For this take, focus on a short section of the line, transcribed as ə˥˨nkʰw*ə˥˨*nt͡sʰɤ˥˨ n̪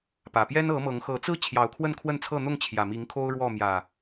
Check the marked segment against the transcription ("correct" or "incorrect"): correct